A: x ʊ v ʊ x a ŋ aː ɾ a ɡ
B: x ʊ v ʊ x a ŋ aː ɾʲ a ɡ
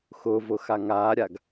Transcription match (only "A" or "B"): B